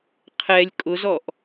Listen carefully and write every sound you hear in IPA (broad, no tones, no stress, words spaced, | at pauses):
qʰɛlʲ kʼʊzɔʔ